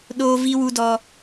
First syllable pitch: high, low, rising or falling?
high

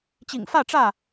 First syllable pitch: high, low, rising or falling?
low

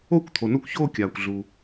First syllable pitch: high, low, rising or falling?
falling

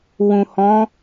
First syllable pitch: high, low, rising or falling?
low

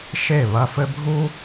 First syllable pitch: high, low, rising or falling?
falling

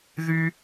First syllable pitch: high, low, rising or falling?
high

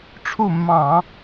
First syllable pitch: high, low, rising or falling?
falling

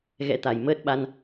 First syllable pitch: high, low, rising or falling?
rising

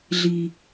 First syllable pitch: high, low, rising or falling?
low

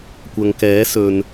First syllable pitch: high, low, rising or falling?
low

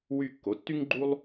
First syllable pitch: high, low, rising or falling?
falling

